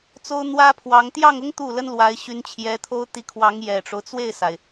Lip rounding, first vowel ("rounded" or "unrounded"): rounded